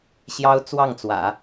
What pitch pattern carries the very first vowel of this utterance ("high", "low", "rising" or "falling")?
high